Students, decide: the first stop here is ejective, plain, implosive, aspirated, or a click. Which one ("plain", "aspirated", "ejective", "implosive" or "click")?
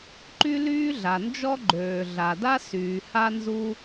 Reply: click